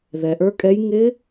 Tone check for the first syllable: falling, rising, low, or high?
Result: low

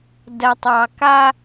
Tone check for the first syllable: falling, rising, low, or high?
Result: low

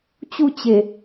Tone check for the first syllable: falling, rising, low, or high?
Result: falling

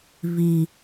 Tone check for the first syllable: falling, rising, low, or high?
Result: low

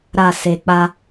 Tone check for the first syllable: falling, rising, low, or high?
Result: low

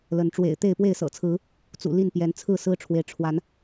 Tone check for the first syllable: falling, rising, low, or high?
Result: rising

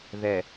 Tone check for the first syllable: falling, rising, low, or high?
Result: low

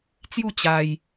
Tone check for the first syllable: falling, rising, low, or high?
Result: falling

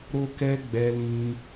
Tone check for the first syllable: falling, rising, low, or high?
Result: high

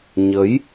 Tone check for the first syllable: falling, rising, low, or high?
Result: rising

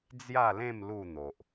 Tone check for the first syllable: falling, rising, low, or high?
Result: falling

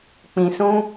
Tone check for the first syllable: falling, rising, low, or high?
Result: low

